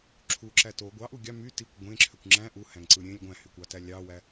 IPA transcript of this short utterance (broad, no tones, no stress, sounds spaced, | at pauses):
ǁʰ u ǁ æ t o ɡʷ ɑ ʔ u ɡʲ ɑ m y t i kʷ ɡʷ ẽ ǁʰ ø kʷ ŋ͡ǁ æ̃ ʔ u h æ̃ ŋ ǀ ɯ ɾʲ ẽ lʲ ɡʷ æ̃ h y kʷ ɑ t æ lʲ ɑ w æ